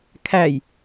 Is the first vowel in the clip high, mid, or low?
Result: low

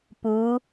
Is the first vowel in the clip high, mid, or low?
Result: high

